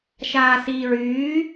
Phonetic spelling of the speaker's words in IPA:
ʃ aː s iː ɹ yː

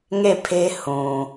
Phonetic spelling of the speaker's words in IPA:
ŋ e˦˨ pʰ e˦ h ũ˨

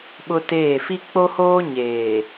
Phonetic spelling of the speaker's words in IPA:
ɓ ʊ˦ t eː˦˨ f i˦ k͡p o˦ h oː˦ ɲ eː˨

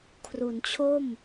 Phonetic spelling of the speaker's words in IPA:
kʰ r u˩˦ n t͡ɕʰ o˥˩ m

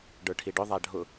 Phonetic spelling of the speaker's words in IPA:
ɖ ə˞ ʈʰ i ɖ ʊ ðˤ a ɖʱ ʊ

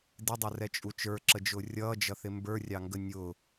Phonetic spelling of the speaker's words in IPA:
d ɪ dˤ ʊ r ɛ t͡ʃʼ u t͡ʃ ə˞ ǁ ə d͡ʒ ʊː rʲ ʌː d͡ʒ ʌ θ ɪ m b ə˞ rʲ ɑ ŋ ɡ ə nʲ ʊ

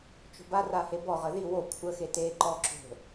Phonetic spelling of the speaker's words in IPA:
t͡ʃ o̤ b a r a h e b ɔ ʁ ə ð i w o kʷʰ ə x e t e ǃ ɔ ǁ o̤

